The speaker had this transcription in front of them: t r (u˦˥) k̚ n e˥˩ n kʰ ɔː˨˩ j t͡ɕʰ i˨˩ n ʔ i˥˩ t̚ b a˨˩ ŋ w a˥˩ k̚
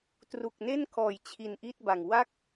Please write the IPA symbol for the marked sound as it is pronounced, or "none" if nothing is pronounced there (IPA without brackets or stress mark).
u˨˩